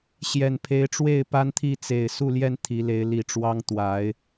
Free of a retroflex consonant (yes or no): no